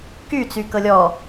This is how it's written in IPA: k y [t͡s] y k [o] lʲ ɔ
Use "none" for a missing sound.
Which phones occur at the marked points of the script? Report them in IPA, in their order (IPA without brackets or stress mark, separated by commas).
t͡s, ɤ